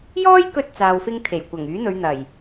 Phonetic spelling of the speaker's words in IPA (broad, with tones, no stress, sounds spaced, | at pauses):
j ɔː˥ j k ɵ˧ t̚ t͡s aː˨ w f ɪ˧ ŋ t̪ʰ e˨˩ j kʷ ɐ˨˩ ŋ yː˨˥ n̪ ɵ˨˧ ɥ n̪ ɐ˨˩ j